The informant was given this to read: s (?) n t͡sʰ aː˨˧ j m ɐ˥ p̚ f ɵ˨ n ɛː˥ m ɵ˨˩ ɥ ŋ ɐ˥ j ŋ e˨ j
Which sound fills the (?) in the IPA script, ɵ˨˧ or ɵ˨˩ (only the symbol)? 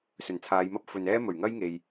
ɵ˨˩